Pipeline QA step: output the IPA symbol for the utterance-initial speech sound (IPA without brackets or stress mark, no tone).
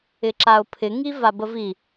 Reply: ɪ